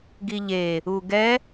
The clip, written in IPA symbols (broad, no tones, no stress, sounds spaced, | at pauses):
ɡ i ʎ e | u ɡ ɛ